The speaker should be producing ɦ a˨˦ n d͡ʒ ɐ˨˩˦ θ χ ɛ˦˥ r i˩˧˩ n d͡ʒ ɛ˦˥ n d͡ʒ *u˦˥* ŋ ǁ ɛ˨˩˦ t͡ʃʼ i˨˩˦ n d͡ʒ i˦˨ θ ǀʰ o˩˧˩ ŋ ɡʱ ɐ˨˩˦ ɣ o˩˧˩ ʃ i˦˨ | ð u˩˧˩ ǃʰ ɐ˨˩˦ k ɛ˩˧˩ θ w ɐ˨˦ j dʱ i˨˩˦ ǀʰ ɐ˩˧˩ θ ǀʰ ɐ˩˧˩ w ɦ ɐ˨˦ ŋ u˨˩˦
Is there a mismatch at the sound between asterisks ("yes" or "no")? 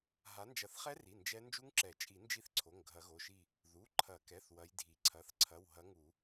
no